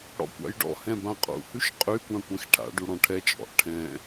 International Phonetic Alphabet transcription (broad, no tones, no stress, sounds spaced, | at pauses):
ɽ ɔ̰ kʷ a̰ j ɖ ɔ̰ h ɛ̃ b ã qʼ ṵ h ʉ ʃ qʼ y kʷ ã kʷ ɛ̃ x ʈʰ a̰ ɖ u ɽ ɔ̃ ʈʰ ɛ t͡ʃʼ ɔ̰ ʔ ʈʰ ɛ̃